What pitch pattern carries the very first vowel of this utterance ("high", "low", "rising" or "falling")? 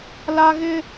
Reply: high